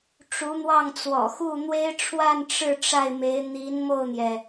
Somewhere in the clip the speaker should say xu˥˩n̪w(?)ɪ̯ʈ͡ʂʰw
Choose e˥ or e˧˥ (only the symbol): e˥